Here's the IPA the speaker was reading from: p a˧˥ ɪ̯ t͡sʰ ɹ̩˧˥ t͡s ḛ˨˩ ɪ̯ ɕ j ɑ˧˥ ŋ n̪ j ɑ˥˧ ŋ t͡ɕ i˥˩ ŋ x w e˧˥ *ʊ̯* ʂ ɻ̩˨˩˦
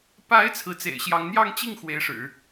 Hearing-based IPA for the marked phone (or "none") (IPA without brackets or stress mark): ɪ̯